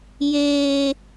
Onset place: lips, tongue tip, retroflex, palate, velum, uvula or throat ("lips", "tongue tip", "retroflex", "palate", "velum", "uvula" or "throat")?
palate